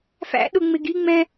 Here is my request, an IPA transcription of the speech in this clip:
f æ̰ ɗ ʊ ŋ͡m ɪ ɡ i ŋ͡m ɛ̃

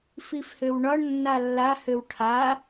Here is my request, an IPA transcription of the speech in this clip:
f i f h ø w ɳ ɒ ɳ nː a lː a h ø w ʈʰ a

